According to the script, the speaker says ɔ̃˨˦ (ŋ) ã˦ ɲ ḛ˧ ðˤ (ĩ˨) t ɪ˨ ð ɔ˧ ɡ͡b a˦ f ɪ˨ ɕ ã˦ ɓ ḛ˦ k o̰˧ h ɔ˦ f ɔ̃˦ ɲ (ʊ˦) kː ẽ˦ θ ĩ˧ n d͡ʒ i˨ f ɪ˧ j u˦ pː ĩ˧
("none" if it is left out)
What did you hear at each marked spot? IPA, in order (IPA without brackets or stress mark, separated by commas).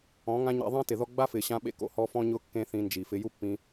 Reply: ŋ, ĩ˦, ʊ˦